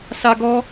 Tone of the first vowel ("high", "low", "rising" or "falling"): high